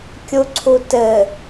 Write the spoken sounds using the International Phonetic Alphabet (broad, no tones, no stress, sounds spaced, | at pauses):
kʲ u ǀʰ u t ɘ